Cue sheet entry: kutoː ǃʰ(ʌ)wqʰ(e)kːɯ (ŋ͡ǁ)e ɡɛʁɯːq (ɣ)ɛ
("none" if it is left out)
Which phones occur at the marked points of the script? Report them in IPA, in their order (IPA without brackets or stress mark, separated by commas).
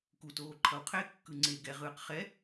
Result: ʌ, e, ŋ͡ǀ, χ